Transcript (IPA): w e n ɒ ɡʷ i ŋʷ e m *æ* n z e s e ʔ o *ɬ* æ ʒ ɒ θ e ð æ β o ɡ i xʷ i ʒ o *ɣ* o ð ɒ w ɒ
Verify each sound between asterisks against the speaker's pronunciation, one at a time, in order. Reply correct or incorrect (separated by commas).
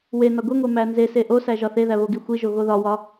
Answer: correct, incorrect, correct